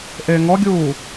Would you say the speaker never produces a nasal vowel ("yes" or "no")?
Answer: yes